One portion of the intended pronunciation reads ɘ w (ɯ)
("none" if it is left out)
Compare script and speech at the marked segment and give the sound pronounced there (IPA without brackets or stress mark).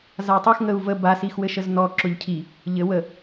ə